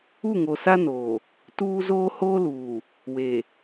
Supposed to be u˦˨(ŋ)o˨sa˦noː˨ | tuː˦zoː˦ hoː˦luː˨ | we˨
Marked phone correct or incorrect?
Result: correct